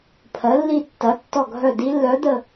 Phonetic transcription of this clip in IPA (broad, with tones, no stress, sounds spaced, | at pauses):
pʰ ɜ˩˧ lː i˧˩ tː ɐ˩˧ tː ɔ˧˩ ɡʱ œ˧˩ d i˧˥ lː œ˧˥ d̪ ə˥˧